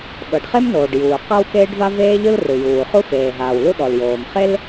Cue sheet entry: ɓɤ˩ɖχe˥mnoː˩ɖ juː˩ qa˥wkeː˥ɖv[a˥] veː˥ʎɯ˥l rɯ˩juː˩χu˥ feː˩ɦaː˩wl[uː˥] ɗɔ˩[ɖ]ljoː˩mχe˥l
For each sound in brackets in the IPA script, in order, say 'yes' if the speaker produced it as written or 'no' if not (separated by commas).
yes, no, no